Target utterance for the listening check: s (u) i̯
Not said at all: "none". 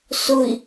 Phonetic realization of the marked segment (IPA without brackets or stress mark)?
ʊ